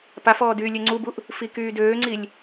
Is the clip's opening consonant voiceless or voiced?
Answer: voiceless